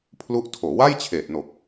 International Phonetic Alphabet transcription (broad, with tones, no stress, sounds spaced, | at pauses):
pʰ l u˦˥ ʔ tʰ oː˩˦ w a˥˩ j t͡ɕʰ eː˨˩ t̚ n o˨˩ k̚